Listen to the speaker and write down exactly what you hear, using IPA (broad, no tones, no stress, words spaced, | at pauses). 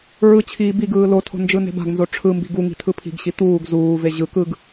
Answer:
ɹɯt͡ɕʰiː biɡɯː lotʰo̤ nd͡ʒɯne̤ba̤ɡnzo ʈ͡ʂʰɯmbi̤ɡ uŋi̤ tʰɯpʰi̤ɡɕi t̪uːɡ zuːve ʑɯ kɯɡ